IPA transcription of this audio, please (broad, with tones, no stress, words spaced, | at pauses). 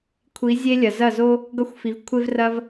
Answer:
kʷʰi˩˥zʲe˥lʲɐ˩ zɐ˥˩zo˥ | ɡʌ˥˩xʷfi˩˥vkʷʰe˥vrɐ˥v